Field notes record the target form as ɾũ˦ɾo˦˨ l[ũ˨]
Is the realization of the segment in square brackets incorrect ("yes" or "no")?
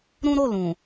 no